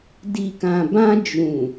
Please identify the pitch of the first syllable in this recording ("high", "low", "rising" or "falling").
low